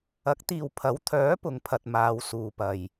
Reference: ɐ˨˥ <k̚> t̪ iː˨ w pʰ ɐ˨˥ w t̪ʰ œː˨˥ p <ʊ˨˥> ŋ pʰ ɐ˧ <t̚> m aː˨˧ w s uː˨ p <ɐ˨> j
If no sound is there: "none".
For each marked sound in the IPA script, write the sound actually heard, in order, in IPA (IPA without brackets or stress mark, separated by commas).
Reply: k̚, ʊ˨˥, t̚, ɐ˨